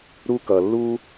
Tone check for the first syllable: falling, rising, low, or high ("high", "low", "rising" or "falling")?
high